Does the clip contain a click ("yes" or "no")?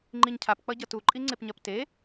yes